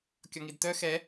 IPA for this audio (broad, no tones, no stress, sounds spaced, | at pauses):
kʲ ɔ ŋ i d t œ x ɛ